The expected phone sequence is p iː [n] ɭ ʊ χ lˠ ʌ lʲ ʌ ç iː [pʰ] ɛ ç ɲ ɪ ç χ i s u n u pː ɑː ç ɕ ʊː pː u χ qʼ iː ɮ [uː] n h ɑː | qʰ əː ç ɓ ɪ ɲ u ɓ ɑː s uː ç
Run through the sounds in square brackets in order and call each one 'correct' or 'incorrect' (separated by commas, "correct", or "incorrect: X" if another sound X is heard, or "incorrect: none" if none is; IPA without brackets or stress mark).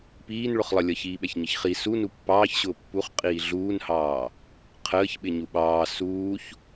correct, incorrect: ɓ, correct